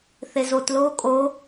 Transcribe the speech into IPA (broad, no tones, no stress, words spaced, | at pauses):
θezot loːkʼo